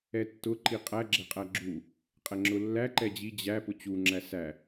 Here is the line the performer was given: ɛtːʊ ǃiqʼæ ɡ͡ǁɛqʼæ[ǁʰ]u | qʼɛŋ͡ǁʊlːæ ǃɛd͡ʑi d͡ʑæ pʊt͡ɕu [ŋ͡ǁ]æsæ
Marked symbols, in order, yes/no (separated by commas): no, yes